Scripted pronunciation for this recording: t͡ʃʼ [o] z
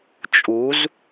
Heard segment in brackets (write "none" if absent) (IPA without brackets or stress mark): u